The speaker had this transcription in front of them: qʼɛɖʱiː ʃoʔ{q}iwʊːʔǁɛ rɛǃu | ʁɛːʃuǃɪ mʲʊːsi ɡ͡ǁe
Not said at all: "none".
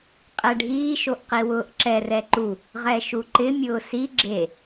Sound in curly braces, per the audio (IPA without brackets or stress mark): q